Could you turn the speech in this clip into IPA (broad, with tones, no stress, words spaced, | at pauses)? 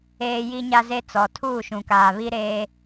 eː˦ ji˦ɲa˦ze˦t͡sɔ˨ tʰuː˦˨ʃũ˨kaː˨βi˦ ɾeː˦